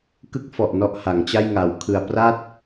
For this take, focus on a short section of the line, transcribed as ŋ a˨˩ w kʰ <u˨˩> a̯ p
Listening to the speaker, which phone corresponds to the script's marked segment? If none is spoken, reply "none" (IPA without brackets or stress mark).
ɯ˨˩